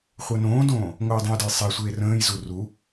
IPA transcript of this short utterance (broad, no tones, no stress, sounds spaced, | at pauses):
χʷ ɜ n õː d õː | ŋʷ əː j dˤ ə̃ j d ə j sˤ e sʷ eː r ə̃ː j z u r u